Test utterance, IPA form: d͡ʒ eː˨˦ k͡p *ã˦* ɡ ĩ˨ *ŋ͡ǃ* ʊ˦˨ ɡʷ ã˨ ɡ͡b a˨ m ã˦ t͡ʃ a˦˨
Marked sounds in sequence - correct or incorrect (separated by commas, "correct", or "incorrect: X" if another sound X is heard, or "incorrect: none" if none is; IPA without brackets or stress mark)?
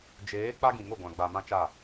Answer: incorrect: a˦, incorrect: ŋ